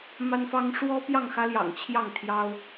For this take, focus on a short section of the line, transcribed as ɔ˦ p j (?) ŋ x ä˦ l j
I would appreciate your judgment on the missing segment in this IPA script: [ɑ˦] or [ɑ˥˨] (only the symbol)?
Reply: ɑ˥˨